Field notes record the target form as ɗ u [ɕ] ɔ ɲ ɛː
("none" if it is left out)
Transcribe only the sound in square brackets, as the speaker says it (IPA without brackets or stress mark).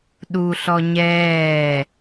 ɬ